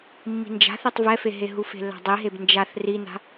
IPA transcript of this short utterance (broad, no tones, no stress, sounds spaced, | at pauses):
mː i̤ n d͡ʒ a̤ θ e tˤ v ɛ f e ɦ e ɦ u f e̤ lː a̤ dˤ i ɦ e b n d͡ʒ a θ r i n a̤